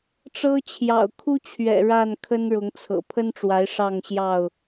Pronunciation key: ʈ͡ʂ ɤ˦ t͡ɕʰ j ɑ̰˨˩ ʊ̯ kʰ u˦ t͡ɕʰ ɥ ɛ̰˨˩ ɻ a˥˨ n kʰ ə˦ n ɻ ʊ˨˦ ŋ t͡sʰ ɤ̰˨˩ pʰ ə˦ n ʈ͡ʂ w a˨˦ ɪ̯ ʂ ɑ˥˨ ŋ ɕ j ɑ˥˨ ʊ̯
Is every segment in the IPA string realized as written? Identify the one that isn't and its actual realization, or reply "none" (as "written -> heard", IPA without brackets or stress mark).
none